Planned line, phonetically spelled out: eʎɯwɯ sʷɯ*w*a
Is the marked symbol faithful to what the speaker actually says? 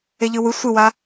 yes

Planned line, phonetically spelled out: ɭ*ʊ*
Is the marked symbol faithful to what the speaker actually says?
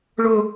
yes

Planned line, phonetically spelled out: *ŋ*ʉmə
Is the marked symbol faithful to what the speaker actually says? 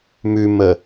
no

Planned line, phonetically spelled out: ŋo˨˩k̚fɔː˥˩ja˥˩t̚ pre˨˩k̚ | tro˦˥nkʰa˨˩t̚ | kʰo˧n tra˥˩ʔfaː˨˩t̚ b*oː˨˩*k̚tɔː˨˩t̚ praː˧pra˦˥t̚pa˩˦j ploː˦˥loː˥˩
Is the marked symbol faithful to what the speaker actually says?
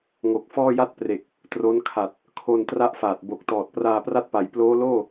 no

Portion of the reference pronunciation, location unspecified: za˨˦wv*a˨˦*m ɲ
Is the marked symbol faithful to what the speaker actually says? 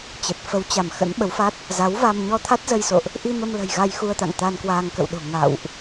no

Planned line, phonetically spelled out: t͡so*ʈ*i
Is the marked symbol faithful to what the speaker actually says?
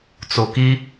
no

